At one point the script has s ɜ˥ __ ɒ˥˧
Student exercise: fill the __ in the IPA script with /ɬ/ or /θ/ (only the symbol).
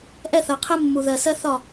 θ